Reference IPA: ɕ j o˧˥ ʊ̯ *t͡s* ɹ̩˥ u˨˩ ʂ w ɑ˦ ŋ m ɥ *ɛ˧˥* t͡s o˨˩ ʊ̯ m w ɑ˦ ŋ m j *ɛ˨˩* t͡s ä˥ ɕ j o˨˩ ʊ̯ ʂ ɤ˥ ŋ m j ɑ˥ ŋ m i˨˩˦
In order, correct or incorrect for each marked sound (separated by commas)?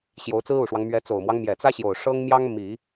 correct, correct, correct